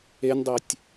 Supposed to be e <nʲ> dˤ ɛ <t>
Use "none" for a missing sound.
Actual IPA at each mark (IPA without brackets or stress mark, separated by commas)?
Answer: nʲ, tʲ